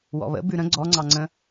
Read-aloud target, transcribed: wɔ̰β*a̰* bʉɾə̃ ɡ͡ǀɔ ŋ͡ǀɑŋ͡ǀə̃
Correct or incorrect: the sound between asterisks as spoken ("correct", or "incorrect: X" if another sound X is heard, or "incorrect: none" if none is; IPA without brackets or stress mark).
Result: incorrect: ə̰